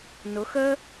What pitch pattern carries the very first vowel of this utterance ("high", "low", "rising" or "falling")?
rising